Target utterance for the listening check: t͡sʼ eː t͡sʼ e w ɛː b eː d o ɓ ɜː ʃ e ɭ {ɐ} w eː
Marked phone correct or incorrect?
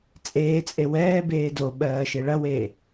correct